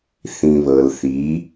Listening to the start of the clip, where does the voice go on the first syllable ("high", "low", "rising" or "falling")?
low